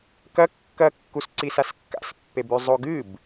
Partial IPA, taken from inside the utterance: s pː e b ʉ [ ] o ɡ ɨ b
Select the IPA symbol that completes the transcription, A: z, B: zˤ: B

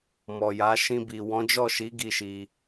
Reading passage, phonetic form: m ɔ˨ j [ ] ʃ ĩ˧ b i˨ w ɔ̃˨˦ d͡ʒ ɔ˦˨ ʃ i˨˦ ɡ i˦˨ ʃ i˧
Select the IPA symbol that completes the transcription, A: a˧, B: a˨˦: B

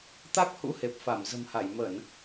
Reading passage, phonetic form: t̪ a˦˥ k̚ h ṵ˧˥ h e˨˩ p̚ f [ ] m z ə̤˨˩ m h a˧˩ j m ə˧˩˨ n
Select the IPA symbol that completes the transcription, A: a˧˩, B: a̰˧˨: A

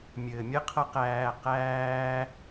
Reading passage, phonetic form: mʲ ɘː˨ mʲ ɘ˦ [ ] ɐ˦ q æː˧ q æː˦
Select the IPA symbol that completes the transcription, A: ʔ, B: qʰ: B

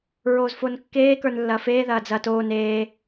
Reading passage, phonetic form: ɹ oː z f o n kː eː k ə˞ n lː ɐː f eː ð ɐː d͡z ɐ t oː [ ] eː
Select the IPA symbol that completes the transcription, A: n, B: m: A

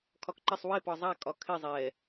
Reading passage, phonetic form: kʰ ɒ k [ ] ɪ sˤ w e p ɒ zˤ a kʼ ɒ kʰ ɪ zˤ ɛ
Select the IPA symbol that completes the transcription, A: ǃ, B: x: A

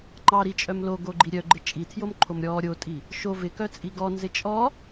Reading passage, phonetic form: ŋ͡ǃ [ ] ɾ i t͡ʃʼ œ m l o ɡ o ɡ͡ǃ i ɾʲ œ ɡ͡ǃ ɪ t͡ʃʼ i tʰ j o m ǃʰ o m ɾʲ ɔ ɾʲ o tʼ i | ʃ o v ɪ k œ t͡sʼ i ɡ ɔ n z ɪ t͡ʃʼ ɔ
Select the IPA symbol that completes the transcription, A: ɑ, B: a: A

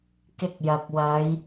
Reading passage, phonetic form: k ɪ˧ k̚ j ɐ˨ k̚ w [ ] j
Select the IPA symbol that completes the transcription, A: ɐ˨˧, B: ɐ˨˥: A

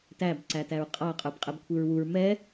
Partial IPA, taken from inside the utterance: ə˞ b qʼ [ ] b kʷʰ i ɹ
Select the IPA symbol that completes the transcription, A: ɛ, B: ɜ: A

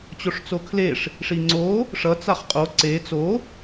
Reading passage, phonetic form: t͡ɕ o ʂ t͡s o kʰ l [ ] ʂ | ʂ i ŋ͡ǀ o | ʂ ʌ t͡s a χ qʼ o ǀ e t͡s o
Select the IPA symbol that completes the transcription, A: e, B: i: A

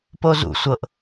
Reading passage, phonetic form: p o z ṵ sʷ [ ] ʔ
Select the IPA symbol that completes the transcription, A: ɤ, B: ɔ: A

